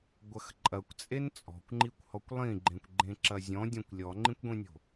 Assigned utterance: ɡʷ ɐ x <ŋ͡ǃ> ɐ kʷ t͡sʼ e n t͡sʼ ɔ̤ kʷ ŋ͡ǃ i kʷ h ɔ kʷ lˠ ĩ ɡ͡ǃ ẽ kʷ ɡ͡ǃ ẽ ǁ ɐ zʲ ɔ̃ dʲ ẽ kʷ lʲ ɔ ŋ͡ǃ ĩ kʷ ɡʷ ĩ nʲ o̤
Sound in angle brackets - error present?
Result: yes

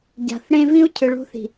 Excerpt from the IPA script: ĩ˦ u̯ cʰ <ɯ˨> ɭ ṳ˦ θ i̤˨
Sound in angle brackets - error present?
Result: no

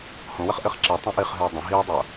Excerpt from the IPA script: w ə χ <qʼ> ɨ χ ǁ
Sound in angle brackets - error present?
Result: yes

